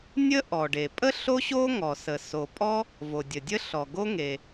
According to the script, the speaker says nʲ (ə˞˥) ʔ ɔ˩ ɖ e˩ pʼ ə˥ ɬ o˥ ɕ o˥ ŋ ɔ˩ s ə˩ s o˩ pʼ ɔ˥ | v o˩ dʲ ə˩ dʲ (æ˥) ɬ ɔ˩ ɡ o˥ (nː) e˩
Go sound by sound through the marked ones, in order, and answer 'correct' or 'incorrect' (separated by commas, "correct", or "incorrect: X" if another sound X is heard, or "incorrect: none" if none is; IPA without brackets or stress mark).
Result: incorrect: ə˥, incorrect: ə˥, incorrect: ŋ